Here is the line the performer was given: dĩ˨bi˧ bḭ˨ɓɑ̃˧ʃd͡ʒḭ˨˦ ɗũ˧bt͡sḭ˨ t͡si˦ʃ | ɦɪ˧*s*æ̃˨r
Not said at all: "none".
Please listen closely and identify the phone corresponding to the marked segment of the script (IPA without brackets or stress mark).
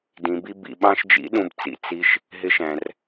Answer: ʃ